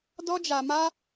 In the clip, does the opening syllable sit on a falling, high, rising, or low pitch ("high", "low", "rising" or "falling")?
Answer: high